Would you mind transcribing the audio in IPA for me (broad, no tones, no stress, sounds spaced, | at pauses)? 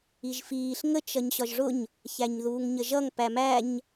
i ʒ f iː ɬ ŋ ə t͡ʃ ʌ ɲ ɕ ɒ ʒ ʐ ʊ ɲ | ç æ ɲ ð uː ŋ ɲ ə ʒ ʌ ŋ p æ m æ ɲ